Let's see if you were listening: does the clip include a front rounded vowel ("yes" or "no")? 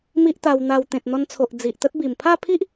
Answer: no